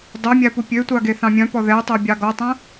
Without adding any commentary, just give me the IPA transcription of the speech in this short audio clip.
dˤ œ mʲ æ p u pʲ ø tʷ ɑ ɡ e θ ɑ̃ mʲ œ̃ p ɔ ð ɛ tˤ e bʲ ɑ ɡ ɔ tˤ œ̃

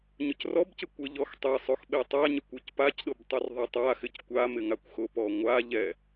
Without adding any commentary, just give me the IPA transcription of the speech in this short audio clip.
ɲ ʊ c r ɔ b c ɪ kʷ ɪ ʎ ɔ x tˤ e sˤ o x ɓ e tˤ a ɲ ɪ kʷ o c p a c ɗ ʊ b tˤ u r ðˤ e tˤ a x ɪ c kʷ a m ɪ ŋ a kʷ x ʊ p ɔ ŋʷ a ʎ ɛ

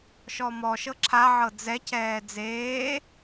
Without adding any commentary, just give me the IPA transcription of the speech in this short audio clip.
ʃ ɔ m ɔ ʃ ɤ ǁʰ a ʕ ɤ d͡z ɛ cʰ ɛː d͡z eː

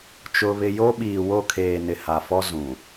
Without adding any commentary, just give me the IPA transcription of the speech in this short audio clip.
t͡ʃ ʊ˦ β ɪ˦ j o˦ ɓ iː˨ w o˦˨ kʰ eː˨ n ɪ˨ h a˨ f ɔ˦ z ũ˨

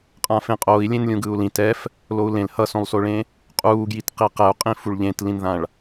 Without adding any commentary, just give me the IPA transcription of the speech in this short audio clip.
qʼ ã f ẽ qʼ oː i̯ lʲ ẽ n lʲ ũ ɡ ɯː u̯ l ĩ t ɛ f | l o u̯ l ẽ l h ʌ s õ lˠ s o ɭ ẽ | qʼ uː ɡ j i t q i q ɛ u̯ qʼ ĩ f u ɭ ʎ ẽ t l ĩ n ð ã ɭ

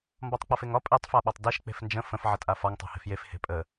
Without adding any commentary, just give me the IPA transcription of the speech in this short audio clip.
m b ɒ tˤ k͡p ɒ f e ŋ ɒ pʼ e tˤ f a ɓ ɒ tˤ d e ʃ k͡p e̤ f n d͡ʒ ə̃ f ə̃ f ʕ ə tʼ a f ɒ ŋ tˤ a̤ h e̤ f j e f h e̤ pʼ ə

